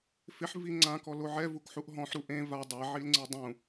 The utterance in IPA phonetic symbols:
f ɪ ħ v i ŋ͡ǀ ã k ɔ l o ʕ ɛ v u k ħ u ʔ ɦ ɔ̃ ħ ɾ u ʔ ẽ v a dˤ ɛ ʕ i l ŋ͡ǀ e dˤ ũ

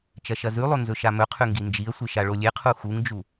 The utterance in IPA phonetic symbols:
t͡ʃ ɐ ʃ ɐ z ʉ lˠ o n z ɵ ʃ a m ɵ qʰ ʉ ŋ ɡ i n d͡ʒ i ə̯ sʷ ɨ ʃ a ɭ o lʲ e qʰ u x u ŋ d͡ʒ u

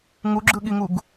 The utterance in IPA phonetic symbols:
ŋ u ɡ͡ǁ ɯ ɠ i ŋ u ɡ

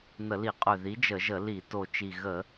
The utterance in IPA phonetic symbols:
n̪ ə˧˩˧ l i˧˩˧ qʼ ø˨˩ ð i˨˥ d͡ʒ ə˧˩˧ ʒ ə˧˩˧ l i˧˩˧ t o˨˩ t͡ʃ i˨˩ ɣ ə˧˩˧

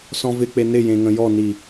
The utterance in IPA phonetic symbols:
s ɔ̃ v ɪ k͡p e n ɪ j ẽ ŋ ə̃ j ɔ n i

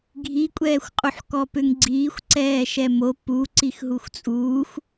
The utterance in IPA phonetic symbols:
ɡʱ i kʷʼ ɛː xʷ qʼ u ħ k ɔ p ʏ ŋ ɡ͡ǀ iː xʷ ǀ ɛː ʃ ɛ m o p u ǀ i x ɦ u x t͡sʼ uː x

